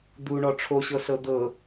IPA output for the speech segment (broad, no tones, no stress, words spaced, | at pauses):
d̪uɳɔ ʈ͡ʂʰoɕɤsɤ d̪ɤ